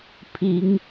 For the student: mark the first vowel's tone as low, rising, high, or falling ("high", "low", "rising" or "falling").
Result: rising